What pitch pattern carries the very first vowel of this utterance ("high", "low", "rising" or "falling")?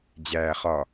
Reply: low